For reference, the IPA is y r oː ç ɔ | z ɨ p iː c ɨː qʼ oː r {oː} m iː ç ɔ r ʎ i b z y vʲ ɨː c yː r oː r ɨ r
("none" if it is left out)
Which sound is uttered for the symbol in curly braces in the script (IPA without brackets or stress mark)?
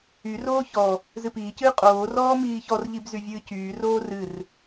ɔː